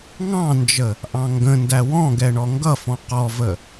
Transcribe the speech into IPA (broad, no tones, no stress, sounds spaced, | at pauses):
ŋ ɑ̃ n d͡ʒ ə | ʔ ɑ̃ ŋ ɡ ə̃ n d æ w ɔ̃ ɡ ɛ ɳ ɔ ŋ ɡ ʌ f ɔ̃ q ɔ v ə